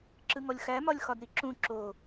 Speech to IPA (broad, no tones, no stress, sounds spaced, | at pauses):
ǁ ɯ ŋ ɔ lʲ x æ m ɒ lʲ x ɒ d ɾ i ǁ ũ ǁ o